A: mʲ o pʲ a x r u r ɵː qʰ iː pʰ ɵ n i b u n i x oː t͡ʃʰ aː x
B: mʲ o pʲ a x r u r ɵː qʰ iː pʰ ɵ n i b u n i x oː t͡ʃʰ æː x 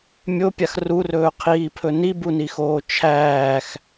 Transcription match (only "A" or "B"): B